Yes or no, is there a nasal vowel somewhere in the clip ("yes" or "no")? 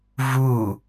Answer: no